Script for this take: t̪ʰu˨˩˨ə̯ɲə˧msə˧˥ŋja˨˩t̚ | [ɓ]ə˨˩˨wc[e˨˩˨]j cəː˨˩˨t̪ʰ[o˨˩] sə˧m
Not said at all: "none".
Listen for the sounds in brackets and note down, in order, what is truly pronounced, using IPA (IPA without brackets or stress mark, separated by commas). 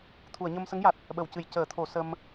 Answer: ɓ, ɨ˨˩˨, o˨˩˨